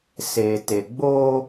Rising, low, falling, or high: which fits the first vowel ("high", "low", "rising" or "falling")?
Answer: low